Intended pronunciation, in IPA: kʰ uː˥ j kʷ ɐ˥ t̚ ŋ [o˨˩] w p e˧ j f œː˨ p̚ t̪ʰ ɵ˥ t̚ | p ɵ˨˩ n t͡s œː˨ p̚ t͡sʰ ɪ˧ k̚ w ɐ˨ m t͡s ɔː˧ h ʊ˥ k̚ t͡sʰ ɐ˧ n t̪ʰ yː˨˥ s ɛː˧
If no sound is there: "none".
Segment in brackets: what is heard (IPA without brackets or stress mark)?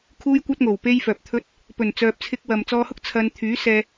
o˨˩